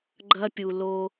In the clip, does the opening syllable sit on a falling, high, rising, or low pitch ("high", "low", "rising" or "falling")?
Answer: high